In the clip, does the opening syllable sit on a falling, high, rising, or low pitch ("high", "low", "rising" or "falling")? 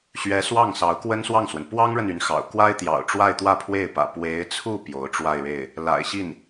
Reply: rising